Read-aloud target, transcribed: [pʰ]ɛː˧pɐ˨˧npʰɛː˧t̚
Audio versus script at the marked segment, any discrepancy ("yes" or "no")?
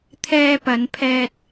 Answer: yes